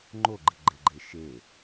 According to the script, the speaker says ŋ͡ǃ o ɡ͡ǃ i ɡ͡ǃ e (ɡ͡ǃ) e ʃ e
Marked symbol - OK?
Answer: yes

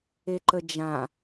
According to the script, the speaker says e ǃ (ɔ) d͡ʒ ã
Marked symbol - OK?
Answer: no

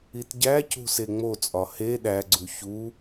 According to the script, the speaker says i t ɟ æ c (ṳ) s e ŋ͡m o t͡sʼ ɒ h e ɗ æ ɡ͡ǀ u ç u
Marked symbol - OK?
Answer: yes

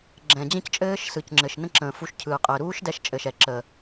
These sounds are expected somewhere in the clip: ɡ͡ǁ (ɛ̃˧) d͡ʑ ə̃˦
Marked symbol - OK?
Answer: no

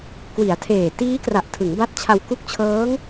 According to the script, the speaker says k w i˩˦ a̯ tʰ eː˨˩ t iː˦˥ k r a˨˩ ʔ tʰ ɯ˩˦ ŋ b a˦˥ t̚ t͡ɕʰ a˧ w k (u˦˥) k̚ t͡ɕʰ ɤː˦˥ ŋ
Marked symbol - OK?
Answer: yes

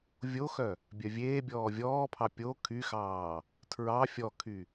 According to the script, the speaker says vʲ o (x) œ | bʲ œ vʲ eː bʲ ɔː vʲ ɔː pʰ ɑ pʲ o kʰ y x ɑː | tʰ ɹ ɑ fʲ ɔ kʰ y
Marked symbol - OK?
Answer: yes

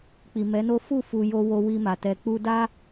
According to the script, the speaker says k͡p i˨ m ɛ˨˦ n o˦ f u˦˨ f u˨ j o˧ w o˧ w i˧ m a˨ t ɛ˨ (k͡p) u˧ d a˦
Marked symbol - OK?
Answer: yes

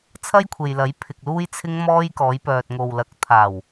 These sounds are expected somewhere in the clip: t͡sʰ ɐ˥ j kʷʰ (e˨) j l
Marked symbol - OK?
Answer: yes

